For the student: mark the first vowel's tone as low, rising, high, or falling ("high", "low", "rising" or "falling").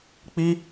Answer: high